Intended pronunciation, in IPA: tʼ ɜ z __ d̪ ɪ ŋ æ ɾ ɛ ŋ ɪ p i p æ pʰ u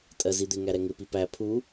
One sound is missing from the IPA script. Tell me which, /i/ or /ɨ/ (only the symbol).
i